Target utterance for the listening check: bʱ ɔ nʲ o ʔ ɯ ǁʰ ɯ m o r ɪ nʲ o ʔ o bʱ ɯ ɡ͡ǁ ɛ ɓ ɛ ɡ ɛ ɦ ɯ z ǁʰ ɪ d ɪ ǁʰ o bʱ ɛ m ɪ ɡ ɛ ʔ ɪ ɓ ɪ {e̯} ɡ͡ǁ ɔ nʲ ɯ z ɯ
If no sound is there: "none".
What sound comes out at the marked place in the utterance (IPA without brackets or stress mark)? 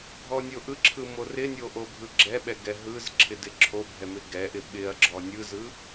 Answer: ɐ̯